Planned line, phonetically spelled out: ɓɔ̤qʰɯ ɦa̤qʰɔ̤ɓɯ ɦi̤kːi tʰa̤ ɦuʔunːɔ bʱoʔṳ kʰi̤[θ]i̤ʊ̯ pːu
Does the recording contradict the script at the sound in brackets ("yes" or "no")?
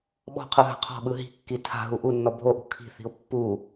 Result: no